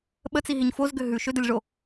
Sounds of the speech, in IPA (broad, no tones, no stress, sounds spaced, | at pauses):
ɓ ə t͡s i ɦ i ɲ f o z ɡ ʏ ɦ ʉ ʃ ʏ d ə lʲ ʐ o